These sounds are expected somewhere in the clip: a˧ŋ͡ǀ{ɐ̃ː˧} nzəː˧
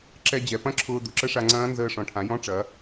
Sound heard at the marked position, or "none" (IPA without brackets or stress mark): ɐ̃ː˦˥